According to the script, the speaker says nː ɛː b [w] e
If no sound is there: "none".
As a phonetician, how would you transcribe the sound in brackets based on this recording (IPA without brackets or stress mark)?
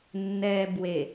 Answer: w